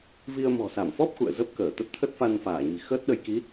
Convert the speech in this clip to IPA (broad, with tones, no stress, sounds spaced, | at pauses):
v i˧ ə̯ m ɔ̤˨˩ s a˧˩ m f ɔ˦˥ p̚ x ṵ˧˨ ə̯ z ə˦˥ p̚ k əː˧˩ t̪ ə˦˥ t̚ t̪ʰ ə˦˥ t̚ f a˧ n f aː˧˩ ɲ i̤˨˩ x əː˦˥ t̚ ɗ ə˧ j k i˨˦